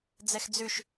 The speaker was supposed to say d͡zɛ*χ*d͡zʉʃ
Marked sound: incorrect: x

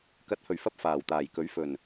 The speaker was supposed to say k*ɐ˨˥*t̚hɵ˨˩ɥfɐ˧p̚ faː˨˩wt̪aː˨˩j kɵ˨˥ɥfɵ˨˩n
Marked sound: correct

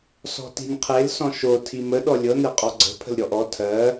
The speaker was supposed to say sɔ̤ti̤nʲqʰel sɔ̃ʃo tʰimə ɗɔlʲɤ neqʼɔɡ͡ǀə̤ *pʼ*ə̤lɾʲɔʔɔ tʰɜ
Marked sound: incorrect: pʰ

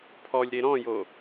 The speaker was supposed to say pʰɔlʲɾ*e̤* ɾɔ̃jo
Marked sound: incorrect: e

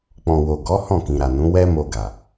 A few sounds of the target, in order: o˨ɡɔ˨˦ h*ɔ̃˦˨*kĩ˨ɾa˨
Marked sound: correct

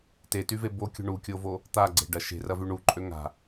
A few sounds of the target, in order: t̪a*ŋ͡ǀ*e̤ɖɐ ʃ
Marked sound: incorrect: ɡ͡ǀ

